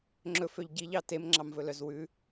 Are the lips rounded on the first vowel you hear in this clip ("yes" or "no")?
yes